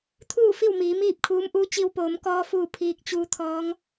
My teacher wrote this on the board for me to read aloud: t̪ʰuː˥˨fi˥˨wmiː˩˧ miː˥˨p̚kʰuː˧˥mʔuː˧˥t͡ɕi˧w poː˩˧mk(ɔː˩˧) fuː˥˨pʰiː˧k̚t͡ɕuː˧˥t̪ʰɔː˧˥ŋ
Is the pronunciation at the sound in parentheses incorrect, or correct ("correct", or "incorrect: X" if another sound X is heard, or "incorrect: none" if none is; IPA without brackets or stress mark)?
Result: incorrect: ɔː˧